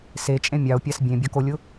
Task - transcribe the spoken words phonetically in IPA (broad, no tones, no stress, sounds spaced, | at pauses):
s e t͡ʃʼ ẽ mʲ ɑ o̯ pʲ a s bʲ ẽ bʲ ɒ k o lʲ ʊ